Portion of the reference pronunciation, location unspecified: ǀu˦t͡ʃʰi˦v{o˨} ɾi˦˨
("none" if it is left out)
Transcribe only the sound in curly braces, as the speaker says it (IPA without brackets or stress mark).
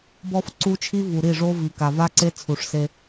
u˨